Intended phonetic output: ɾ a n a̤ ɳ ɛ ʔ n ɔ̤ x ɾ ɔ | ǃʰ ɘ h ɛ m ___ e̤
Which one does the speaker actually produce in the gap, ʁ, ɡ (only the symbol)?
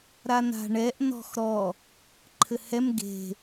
ɡ